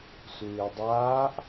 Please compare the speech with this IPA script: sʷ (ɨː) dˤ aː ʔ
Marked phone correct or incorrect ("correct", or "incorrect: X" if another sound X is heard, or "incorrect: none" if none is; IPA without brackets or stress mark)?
correct